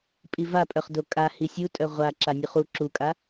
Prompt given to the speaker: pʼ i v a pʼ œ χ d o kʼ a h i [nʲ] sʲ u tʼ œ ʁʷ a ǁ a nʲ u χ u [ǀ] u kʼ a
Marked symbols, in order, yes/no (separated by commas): no, no